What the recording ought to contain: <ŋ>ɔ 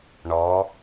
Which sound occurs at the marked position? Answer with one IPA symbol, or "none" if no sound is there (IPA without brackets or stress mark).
ɳ